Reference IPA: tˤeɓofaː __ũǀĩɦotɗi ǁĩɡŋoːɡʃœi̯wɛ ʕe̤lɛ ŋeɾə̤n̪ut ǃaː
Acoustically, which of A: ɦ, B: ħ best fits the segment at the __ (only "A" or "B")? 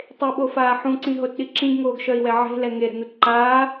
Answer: B